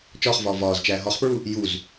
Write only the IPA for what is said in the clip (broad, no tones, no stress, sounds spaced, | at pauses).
t͡ʃ ɒː χ v ɒː v ɒː z t͡ʃ æː ɦ ɒ χ p ɹ u | j u z